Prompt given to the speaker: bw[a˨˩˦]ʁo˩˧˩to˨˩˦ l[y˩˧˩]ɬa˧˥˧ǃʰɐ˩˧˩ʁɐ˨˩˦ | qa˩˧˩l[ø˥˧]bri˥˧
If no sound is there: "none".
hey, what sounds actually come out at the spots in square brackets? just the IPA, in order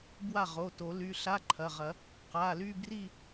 a˥˩, y˩˧˩, y˥˧

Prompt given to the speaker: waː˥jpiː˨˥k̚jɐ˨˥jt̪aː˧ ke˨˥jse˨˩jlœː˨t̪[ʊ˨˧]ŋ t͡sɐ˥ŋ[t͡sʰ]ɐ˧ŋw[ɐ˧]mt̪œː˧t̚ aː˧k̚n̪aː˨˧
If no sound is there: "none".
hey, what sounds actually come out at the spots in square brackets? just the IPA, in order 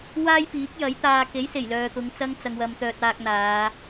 ʊ˨˧, t͡s, ɐ˧

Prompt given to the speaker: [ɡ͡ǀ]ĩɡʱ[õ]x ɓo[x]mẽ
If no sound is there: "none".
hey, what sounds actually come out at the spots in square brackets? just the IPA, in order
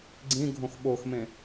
ɡ͡ǀ, õ, x

